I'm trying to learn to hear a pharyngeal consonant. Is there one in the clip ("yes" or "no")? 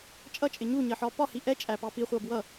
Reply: yes